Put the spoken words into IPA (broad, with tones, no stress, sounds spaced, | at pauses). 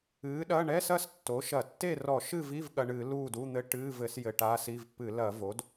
ɨː˩˥ ɗ ɐ˧˥˧ ɳ ɛ˧˥˧ s ɐ˥˨ s tː o˩˥ ʃ ɐ˧˩˧ tː e˥˨ r ɔ˧˩˧ ʃ ɨ˥˨ v i˧˥˧ v ɠ ɐ˧ ɳ ɨ˧˩˧ l uː˥˨ d u˧˥˧ n̪ ɘ˧˥˧ ʈ ɨː˧˥˧ v ɘ˧˩˧ s j ɘ˧ ʈ aː˧˥˧ s i˧˥˧ v p ɨ˧˩˧ l ɐ˧˩˧ v o˩˥ d